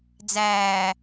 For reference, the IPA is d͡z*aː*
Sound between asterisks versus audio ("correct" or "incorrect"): incorrect